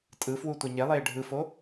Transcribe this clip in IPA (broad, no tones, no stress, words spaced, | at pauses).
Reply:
tʼɯfwu tʷɛɲelˠeː ɖʱɯfo